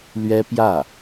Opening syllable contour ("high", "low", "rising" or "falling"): high